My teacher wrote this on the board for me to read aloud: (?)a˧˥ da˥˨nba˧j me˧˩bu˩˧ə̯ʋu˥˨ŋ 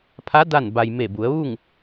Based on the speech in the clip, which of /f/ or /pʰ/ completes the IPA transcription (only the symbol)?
pʰ